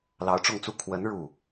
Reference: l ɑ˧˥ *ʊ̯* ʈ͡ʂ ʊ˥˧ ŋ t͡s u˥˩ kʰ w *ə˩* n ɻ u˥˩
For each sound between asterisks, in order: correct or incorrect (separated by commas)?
correct, incorrect